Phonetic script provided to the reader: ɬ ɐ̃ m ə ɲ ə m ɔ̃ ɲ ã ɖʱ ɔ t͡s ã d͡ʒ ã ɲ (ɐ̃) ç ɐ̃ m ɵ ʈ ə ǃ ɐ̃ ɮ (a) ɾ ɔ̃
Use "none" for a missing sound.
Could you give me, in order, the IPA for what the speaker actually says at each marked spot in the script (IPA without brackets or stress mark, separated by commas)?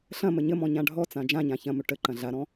ã, a